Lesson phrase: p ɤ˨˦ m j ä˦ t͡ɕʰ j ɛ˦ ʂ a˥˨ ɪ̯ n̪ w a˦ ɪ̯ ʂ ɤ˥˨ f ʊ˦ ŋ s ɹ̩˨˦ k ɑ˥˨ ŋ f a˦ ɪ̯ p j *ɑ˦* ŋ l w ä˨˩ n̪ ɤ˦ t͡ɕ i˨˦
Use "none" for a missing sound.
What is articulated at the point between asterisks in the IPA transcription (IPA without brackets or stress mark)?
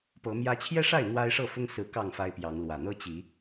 ɑ˨˦